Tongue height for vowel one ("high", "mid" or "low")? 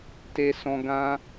mid